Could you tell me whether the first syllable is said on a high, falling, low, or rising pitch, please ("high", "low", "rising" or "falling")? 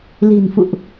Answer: low